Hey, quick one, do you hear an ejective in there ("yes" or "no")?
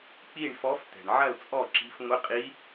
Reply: yes